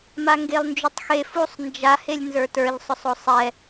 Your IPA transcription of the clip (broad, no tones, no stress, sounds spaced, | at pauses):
m a ŋ ɡ e lˠ n d͡ʒ u tˤ x e f u sˤ n d͡ʒ a h e lʲ n z ə˞ t ə˞ ʎ sˤ ʊ sˤ o sˤ ɛ